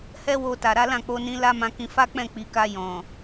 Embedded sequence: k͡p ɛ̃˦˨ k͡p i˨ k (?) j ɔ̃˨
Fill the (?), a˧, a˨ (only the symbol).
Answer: a˧